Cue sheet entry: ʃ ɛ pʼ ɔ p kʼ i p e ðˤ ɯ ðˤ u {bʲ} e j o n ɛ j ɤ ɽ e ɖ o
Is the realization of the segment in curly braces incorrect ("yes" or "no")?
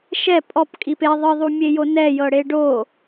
yes